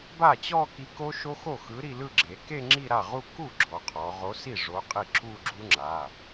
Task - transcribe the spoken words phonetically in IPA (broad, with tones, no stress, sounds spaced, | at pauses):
b a˥˩ t͡ɕ ɔ˥˧ k i˨˥ k o˦˥ ʃ o˦˥ x o˥˩ x ɯ˨˥ ɾ i˥˧ l ɯ˥˧ ɡ͡ǁ e˩˧ k e˥˧ ŋ͡ǁ i˥˧ ɾ a˥˩ ʁ u˥˧ k u˥˩ ɡ͡ǁ ɔ˩˧ qʰ ɔ˩˧ ʁ o˨˥ s i˥˩ ʐ o˨˥ qʼ i˥˩ ǁ u˥˧ ɡ͡ǁ u˦˥ ŋ͡ǁ a˩˧˩